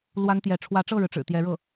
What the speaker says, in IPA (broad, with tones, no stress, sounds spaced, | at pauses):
l w a˥ n t̪ j ɛ˧˥ ʈ͡ʂʰ w ä˧˥ ʈ͡ʂ ɤ˥˩ ɻ ɻ̩˩ ʈ͡ʂ ɻ̩˨˩ t̪ j ɛ˧˥ ɻ ɤ˥˩